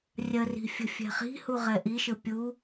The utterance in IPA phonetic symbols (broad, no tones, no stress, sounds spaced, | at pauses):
rʲ ɜ r i̤ fʲ ə̤ fʲ ɛ̤ χ i̤ h u ʁ ɛ ʔ i ʃ ɯ pʲ u